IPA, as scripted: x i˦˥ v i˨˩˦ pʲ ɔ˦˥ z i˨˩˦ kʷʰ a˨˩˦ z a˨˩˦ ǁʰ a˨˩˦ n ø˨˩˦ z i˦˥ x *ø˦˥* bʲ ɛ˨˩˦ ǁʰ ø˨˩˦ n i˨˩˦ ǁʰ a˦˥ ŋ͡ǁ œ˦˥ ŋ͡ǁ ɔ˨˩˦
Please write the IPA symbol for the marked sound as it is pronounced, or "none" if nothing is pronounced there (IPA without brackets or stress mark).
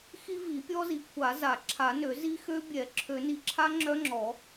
ø˦˥